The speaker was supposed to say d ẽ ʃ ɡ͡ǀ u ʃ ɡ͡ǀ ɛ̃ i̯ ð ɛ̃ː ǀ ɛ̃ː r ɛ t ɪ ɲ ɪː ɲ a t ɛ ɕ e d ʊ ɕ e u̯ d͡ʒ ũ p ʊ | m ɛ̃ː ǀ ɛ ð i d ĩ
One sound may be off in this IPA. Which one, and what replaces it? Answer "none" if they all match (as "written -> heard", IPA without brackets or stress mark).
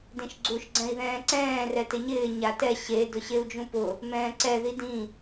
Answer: none